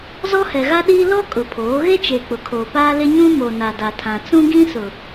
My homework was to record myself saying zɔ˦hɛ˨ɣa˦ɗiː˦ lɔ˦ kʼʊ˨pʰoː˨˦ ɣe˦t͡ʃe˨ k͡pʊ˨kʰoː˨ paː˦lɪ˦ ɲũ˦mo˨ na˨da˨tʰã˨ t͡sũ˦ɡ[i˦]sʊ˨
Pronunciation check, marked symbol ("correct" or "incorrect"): incorrect